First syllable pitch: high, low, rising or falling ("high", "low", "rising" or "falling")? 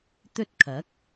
high